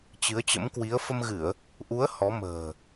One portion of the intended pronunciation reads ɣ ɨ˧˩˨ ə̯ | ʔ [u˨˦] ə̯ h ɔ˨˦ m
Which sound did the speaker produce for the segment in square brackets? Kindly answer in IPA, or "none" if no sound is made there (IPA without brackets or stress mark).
u˨˦